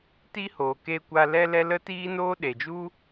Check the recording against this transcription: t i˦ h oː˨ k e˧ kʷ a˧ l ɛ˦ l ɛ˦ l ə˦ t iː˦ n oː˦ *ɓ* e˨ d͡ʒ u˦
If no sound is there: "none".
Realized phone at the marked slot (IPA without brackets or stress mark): ɗ